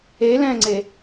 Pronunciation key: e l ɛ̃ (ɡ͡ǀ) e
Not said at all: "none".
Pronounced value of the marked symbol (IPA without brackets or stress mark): ŋ͡ǀ